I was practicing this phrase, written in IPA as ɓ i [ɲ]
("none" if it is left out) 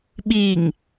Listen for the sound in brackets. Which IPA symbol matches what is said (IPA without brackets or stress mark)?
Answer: ŋ